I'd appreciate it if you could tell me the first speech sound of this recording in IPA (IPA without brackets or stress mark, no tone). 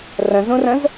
r